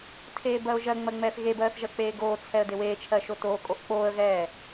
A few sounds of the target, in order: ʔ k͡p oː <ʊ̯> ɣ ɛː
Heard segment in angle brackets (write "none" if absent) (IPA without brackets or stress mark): ə̯